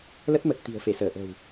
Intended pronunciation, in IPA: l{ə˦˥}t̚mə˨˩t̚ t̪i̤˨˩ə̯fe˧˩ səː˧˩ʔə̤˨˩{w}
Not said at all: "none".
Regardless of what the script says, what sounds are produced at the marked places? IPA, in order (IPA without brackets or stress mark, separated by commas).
ə˦˥, w